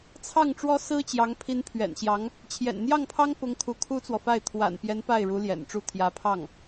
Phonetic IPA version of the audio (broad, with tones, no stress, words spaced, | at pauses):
t͡sʰɑ˥˩ŋʈ͡ʂwɔ˥sɹ̩˥t͡ɕjɑ˧˥ŋ pʰi˧˥npʰɥɛ̰˨˩n ɕjɑ˧˥ŋ | t͡ɕʰjɛ̰˨˩nn̪jɑ˥˩ŋpʰɑ˥ŋ pʊ˧˥ŋ kʰu˧˥kʰu˥t͡swɔ˨fa˥˩ɪ̯ t̪ʰwa̰˨˩npjɛ˧˥n pa˥˩ɪ̯ɻu˧˥ ljɛ̰˨˩nʈ͡ʂu˥˩ t̪ʰjä˧˥pʰɑ˥˩ŋ